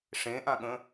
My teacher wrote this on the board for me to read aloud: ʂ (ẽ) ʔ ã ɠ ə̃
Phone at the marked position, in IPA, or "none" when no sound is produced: ẽ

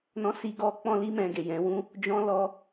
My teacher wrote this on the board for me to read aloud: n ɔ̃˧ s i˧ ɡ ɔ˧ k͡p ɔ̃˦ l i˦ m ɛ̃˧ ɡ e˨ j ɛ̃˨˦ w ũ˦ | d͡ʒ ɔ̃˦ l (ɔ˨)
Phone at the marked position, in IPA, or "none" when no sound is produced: ɔ˦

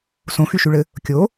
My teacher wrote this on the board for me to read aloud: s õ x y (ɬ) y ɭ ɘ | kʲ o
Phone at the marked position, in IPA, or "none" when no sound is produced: ʃ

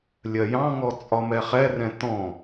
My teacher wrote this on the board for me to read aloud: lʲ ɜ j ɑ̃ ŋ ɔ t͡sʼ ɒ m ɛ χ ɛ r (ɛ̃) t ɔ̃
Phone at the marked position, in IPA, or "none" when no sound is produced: ɛ̃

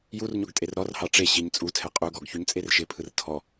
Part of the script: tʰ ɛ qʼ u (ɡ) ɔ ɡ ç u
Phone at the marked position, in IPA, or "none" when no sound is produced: ɡ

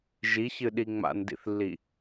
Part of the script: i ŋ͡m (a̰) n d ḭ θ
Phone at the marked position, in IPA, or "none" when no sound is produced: a̰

